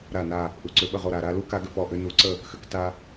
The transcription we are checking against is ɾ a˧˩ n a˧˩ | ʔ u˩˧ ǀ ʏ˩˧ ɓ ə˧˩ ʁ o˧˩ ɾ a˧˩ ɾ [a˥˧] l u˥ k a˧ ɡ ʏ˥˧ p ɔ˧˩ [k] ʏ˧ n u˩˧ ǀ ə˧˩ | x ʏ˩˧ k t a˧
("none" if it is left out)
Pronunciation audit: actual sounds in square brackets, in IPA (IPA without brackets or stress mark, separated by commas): a˥˧, ʔ